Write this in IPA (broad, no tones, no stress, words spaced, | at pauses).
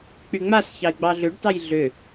k͡pyŋ͡masçɑɪ̯ ɡ͡bɑɮʏɖtɑj ɮʏ